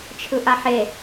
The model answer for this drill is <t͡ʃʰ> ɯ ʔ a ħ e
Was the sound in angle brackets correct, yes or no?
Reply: yes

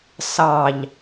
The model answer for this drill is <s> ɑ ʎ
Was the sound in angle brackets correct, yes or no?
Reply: yes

